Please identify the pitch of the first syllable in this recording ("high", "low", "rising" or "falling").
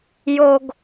high